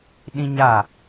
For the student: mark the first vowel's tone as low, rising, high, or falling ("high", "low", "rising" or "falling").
high